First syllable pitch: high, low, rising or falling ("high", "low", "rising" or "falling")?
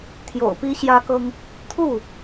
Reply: low